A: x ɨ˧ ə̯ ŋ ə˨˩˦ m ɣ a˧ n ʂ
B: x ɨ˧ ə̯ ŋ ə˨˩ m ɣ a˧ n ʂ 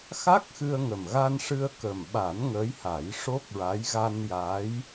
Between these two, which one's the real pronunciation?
B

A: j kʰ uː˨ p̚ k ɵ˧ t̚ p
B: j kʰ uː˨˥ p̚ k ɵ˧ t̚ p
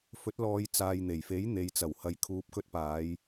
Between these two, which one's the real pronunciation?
A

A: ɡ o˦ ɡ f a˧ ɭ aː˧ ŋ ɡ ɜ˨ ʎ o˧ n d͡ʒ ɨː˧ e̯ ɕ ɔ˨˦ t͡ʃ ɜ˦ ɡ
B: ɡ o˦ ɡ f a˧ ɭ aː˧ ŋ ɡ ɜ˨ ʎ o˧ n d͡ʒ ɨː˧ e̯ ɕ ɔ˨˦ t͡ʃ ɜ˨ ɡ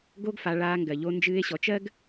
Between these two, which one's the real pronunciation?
A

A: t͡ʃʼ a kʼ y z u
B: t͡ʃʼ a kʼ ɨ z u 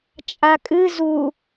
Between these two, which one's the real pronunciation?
B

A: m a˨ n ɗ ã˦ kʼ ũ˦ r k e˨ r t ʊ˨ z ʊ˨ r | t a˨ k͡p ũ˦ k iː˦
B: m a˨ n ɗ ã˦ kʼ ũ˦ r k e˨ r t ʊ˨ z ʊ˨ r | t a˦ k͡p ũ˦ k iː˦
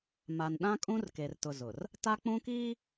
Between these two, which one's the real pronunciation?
B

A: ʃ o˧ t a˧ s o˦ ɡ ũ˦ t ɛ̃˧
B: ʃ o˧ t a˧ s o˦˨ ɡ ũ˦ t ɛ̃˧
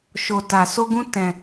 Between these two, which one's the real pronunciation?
A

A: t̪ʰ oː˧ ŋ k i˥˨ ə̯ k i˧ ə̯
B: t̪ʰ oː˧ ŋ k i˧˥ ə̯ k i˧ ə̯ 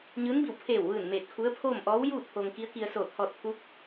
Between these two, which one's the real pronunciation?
B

